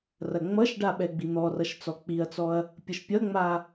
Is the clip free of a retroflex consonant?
no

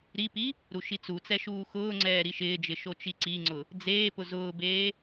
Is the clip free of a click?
no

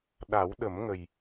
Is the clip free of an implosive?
no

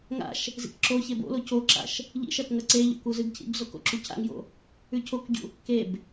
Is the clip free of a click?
no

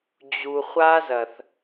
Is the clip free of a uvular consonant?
no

